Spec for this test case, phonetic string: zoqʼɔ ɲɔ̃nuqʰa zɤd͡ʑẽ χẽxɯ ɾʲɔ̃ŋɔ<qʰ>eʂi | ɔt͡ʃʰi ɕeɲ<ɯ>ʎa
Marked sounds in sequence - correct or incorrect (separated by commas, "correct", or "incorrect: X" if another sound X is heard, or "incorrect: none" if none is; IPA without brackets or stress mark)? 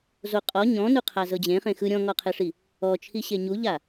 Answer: correct, incorrect: u